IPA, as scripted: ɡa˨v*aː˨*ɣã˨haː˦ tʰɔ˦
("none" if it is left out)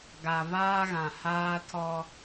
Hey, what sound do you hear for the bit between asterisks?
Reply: aː˦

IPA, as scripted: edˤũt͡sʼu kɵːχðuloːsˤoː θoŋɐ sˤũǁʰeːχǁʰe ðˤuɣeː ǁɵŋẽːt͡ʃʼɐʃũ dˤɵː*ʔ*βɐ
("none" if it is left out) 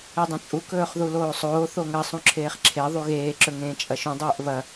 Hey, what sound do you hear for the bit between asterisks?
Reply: ʔ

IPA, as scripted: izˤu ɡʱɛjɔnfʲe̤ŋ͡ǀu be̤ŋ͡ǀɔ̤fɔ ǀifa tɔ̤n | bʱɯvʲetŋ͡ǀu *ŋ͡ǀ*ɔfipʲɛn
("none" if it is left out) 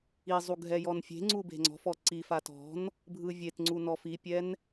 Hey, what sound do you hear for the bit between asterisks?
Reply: n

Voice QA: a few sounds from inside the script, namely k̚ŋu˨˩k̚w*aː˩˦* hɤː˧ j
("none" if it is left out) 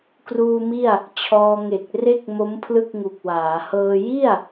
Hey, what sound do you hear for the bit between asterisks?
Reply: aː˩˦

